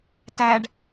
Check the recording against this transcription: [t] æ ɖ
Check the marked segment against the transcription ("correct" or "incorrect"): correct